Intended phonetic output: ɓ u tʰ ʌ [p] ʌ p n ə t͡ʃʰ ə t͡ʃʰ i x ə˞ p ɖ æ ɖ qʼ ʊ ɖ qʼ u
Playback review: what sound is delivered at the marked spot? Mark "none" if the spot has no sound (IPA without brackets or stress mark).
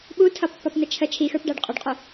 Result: pː